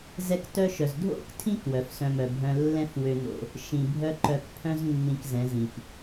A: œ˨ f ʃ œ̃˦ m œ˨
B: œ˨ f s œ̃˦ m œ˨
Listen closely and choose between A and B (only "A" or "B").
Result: B